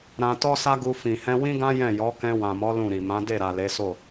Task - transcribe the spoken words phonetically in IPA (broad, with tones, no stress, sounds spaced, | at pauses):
ɾ ã˧ t ɔ˦ s a˦ ɡ u˧ f ĩ˨ h ɛ̃˧ w ĩ˦ ɡ ã˦ j ɛ̃˦˨ j ɔ˨˦ k ɛ̃˧ w ã˨ m ɔ˨˦ l ũ˦˨ ɾ i˨ m ã˨˦ d e˦˨ ɾ a˨ l e˨˦ s o˦˨